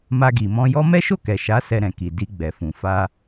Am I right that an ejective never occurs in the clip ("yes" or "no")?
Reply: yes